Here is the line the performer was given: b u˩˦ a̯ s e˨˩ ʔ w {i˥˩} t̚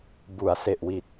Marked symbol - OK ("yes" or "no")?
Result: no